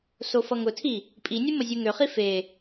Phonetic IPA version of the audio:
sofʌŋʊtʰi | pʼinʲu məzʲuŋøχi fe

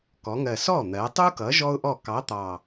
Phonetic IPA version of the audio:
kɔ˩˧ŋɜ˨˩sɔ˥˩n̪ɜ˩˧ tˤu˥kʌ˨˥ ʒɔ˥ʊ̯ʔɔ˥˩ kɑ˨˥t̪ɑ˨˩

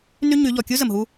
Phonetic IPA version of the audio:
ny˦ɲy˨˦ʎɔ˨ kʲu˦zə˨mɦu˦

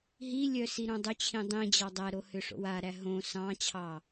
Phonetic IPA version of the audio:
ɦilʲœ siɾõdˤʏt͡ɕʰĩ dˤĩd͡ʑɑ dˤæɾo hʏʂo̰waɾæ ɦõ sɑ̃t͡ɕʰɑ

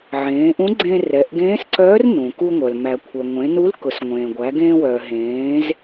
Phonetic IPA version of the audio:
ʕẽː˩˧ʔũ˧˥ɡ͡ǀẽ˧ rɛ˩˧ʔɡẽː˧˥sǀœː˧˥r nũ˩ku˧ŋʷœ˩l mæ˩kʷʰœ˩ŋʷẽ˩˧nu˧˥l kʊ˩˧sŋʷẽː˩ɡʷæ˩˧ ɡẽː˧wœː˩ ɦẽː˩˧z

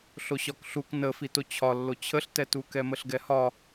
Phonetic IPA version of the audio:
ɬoɕɒkɬuk nəfito t͡ɕʰɒ lːot͡ɕʰəɬtɛtu kɛməɬɡɛhɒ

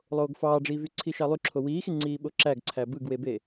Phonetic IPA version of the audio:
lˠoːɡfɑːɖ͡ʐiːvy ǀʰiʃɑlˠy ǁʰowiːxi ŋ͡ǀiːɓoǁæɡ ǀʰæbɯɡwebe

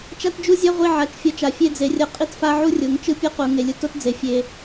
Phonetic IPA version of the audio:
t͡ʃa˧td͡ʒu˧ zʲa˦ʁʷi˧ ʕa˨t͡ʃfʲʌ˨˦t͡ʃa˨ fʲe˧d͡ze˨rʲʌ˧ qʼi˦tfa˦ʕu˦rʲo˨˦ŋ t͡ʃɯ˦pʲʌ˦ qu˨ ŋe˨lʲɯ˧to˦td͡ze˨ fʲe˧

